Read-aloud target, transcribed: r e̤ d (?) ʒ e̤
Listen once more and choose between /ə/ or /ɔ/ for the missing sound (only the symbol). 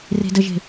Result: ə